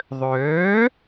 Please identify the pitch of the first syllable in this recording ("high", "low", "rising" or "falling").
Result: rising